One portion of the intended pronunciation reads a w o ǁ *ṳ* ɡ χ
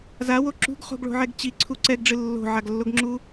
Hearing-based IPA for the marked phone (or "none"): ṳ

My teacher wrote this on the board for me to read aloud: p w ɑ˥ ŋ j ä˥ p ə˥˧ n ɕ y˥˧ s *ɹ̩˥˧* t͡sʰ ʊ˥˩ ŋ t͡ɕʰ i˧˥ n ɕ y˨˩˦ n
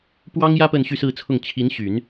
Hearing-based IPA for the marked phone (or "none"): ɹ̩˥˧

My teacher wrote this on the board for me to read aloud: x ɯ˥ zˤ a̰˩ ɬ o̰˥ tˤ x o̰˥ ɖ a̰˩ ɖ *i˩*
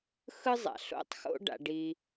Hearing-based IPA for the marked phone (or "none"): i˩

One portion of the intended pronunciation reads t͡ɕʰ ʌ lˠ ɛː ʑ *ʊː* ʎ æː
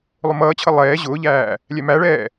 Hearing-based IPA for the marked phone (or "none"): ʊː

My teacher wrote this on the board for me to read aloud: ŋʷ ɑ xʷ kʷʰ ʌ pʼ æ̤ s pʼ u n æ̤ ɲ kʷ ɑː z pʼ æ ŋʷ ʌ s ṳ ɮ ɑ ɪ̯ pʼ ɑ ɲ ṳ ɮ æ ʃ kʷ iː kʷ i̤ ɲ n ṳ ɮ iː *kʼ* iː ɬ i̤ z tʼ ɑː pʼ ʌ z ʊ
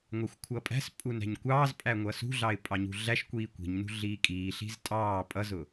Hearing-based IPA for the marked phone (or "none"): kʼ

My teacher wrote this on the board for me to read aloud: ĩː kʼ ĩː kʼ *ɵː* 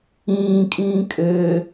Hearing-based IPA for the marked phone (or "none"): øː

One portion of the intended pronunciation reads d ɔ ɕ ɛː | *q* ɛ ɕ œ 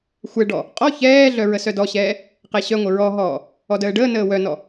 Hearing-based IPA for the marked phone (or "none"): q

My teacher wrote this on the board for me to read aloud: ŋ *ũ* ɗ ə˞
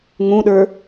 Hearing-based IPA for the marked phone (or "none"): ũ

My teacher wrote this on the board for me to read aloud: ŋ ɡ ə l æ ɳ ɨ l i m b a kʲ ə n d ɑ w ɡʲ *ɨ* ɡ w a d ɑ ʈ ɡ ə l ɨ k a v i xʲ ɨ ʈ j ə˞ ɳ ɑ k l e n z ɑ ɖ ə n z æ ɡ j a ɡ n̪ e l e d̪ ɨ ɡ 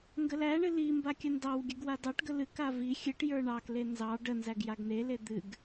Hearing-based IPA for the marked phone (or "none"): ɨ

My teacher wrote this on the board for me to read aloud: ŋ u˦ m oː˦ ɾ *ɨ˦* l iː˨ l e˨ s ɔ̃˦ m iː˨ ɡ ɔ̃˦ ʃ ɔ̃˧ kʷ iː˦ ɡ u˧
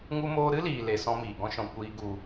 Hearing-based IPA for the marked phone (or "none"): ɨ˦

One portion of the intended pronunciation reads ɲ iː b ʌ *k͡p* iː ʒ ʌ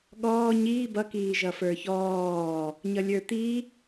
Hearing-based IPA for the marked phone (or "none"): k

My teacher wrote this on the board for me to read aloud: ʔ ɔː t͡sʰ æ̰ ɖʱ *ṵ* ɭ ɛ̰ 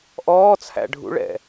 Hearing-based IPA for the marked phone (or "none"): ṵ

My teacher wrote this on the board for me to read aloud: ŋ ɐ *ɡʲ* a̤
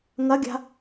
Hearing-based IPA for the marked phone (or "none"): ɡʲ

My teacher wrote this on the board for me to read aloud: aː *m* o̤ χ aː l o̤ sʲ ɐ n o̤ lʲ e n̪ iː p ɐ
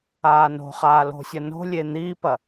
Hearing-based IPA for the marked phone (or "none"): n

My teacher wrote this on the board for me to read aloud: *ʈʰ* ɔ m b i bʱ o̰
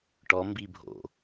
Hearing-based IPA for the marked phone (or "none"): ʈ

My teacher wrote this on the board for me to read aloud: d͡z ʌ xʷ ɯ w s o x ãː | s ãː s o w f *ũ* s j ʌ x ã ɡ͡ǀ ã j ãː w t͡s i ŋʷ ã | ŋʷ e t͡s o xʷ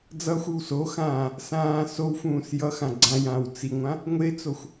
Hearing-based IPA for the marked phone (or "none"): ũː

